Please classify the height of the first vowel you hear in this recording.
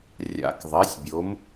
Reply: low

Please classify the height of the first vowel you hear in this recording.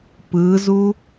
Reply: high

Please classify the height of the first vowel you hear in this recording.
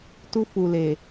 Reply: high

